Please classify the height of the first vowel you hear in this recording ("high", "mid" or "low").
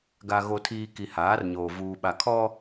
low